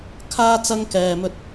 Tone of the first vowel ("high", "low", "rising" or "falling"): high